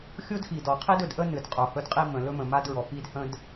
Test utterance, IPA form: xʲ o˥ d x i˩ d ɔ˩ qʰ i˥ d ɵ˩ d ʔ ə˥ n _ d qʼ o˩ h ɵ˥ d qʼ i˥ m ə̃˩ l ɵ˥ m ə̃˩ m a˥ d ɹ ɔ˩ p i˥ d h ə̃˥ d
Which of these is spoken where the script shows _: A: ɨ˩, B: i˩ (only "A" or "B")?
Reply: A